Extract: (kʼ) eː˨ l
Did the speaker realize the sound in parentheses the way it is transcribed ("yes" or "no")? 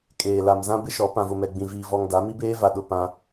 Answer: yes